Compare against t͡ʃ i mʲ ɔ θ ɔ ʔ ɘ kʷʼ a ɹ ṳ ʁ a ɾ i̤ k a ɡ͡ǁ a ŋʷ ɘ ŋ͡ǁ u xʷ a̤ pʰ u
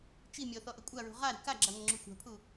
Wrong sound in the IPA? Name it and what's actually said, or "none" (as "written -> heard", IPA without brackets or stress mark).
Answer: none